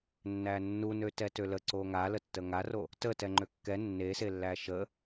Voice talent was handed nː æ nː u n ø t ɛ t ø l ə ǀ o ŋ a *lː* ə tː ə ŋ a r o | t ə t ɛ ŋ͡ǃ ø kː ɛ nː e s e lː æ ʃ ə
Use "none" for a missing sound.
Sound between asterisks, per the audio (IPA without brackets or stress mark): l